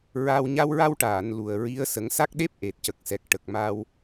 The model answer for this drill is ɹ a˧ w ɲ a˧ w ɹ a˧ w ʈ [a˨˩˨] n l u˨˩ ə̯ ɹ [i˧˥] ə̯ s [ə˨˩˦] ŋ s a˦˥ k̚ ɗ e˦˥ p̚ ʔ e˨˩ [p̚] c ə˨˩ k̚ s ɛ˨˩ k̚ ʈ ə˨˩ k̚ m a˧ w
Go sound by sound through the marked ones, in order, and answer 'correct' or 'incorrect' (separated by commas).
incorrect, correct, correct, incorrect